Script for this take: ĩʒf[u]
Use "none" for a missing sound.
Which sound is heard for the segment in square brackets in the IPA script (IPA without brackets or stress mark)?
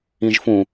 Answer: ũ